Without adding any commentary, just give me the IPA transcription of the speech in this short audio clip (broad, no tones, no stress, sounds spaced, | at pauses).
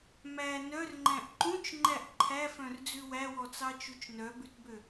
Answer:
m æ n œ r ŋ͡ǃ æ̃ ʔ ǃ ũ t͡ʃ ŋ͡ǃ æ ʔ ǃʰ æ f œ̃ r d͡z ʉ w æ w ɔ t͡s ɑ t͡ʃ u t͡ʃ n œ b ʉ t b ø